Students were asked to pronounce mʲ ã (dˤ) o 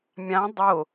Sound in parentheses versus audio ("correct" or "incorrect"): correct